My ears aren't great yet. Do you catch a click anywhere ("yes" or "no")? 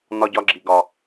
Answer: yes